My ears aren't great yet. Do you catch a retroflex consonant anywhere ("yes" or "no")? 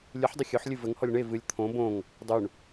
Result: yes